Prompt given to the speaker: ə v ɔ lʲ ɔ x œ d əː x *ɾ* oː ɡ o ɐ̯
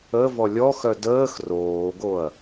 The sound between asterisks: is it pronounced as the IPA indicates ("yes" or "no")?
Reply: no